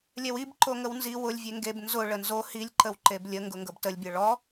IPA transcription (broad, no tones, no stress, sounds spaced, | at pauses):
lʲ ɛ w i b ǃ o ŋ ə w n z i w ʊ lʲ vʲ e ŋ ɡ e b n z ʊ ɭ ə n z o h i lʲ ǃ ə w ǃ e b lʲ ə ŋ ɡ ʊ ŋ ɡ ɤ b t ə lʲ bʲ ɤ ɭ ɔ